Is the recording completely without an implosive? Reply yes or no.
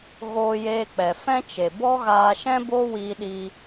no